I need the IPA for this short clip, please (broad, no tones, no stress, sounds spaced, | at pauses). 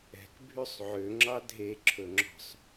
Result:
ɛ̤ k bʱ y sˤ ʕ ø ŋ͡ǁ ɑ dʱ e ǁʰ ɵ ŋ͡ǁ ɔ̤ sˤ